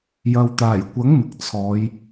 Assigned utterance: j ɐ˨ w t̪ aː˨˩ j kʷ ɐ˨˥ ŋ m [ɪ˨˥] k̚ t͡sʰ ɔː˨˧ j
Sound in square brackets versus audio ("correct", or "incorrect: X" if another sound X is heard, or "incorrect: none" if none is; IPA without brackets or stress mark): incorrect: ɪ˨